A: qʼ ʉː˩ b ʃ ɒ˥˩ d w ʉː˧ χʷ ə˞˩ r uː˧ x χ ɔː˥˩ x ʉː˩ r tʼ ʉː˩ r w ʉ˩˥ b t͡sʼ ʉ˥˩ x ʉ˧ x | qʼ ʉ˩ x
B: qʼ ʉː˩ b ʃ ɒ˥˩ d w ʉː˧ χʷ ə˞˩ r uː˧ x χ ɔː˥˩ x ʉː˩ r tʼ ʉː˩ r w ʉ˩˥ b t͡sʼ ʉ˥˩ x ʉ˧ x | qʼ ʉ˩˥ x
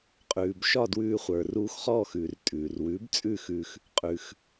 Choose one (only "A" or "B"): A